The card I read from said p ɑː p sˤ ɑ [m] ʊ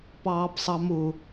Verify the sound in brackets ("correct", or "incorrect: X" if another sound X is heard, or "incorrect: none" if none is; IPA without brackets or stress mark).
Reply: correct